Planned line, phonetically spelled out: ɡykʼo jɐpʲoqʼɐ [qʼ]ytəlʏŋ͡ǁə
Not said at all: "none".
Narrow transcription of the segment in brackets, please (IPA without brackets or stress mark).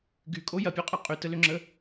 qʼ